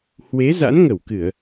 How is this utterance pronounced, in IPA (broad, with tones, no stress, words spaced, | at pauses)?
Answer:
hwe˨˦za̰˧˥nŋə˧˩wkɨ˧˩˨ə̯